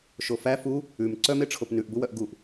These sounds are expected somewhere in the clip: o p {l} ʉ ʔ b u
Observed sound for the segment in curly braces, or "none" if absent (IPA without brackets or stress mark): n